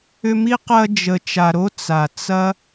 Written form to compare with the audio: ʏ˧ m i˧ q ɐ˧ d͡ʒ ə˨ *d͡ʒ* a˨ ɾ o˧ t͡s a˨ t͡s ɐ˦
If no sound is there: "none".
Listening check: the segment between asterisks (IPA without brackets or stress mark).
t͡ʃ